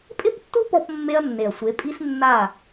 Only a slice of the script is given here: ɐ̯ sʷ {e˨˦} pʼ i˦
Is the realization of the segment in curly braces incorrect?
no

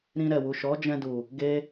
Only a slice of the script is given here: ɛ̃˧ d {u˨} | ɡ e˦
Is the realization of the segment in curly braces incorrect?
no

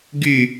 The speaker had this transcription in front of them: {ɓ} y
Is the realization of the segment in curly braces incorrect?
yes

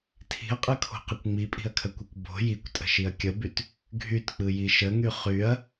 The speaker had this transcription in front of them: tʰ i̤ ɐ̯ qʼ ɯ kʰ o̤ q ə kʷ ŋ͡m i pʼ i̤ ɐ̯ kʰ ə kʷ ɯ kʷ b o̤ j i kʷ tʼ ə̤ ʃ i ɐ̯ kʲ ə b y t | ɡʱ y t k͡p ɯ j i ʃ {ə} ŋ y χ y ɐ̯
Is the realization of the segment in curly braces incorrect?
no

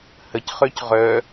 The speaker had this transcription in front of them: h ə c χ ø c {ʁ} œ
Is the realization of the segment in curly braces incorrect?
no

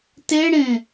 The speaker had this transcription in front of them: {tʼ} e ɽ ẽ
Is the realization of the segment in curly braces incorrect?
yes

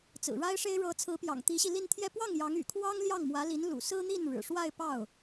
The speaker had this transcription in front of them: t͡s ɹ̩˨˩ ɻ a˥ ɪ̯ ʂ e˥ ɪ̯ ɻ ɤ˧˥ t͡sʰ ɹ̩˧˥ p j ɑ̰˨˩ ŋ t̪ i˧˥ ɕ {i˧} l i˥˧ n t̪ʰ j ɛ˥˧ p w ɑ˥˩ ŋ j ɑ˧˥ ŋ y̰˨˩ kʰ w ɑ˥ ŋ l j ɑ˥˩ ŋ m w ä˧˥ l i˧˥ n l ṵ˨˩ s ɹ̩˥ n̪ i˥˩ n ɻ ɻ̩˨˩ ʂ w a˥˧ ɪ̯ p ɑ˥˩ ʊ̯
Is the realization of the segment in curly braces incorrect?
no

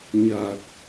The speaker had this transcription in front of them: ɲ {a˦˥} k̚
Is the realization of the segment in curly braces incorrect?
yes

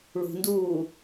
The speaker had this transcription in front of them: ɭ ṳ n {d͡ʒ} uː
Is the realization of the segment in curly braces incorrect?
yes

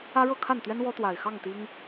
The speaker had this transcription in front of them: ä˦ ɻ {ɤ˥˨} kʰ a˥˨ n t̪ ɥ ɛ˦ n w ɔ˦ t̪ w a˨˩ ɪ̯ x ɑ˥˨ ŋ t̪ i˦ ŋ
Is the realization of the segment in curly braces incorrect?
no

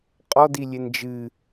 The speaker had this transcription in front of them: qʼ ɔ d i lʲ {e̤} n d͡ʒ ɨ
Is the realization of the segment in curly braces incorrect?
yes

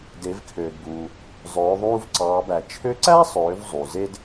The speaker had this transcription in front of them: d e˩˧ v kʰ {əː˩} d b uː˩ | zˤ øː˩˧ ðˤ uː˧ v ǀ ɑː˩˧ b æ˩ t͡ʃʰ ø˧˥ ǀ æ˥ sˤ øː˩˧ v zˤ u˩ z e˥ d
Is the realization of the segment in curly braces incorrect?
yes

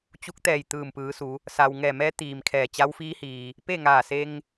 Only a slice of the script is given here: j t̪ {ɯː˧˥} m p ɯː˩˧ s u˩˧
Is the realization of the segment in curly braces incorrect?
yes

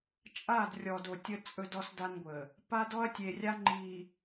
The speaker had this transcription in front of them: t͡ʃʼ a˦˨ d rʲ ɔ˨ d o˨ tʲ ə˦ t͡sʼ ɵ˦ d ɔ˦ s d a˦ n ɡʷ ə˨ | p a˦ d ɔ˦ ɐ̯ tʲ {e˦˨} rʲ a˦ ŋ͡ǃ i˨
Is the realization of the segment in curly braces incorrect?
yes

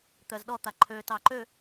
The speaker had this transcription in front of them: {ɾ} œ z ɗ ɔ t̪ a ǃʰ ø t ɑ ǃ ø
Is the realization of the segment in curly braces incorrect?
yes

